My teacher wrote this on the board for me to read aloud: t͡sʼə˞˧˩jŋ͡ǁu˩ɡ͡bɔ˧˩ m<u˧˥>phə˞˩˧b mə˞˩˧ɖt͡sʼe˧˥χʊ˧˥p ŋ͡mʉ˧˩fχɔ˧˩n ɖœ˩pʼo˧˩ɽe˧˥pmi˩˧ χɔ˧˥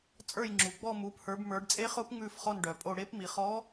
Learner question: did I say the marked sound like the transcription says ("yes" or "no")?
no